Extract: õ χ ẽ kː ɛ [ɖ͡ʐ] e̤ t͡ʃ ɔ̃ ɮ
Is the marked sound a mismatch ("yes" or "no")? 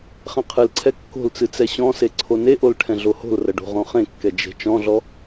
yes